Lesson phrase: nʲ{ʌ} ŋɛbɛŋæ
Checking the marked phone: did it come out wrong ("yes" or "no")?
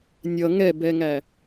no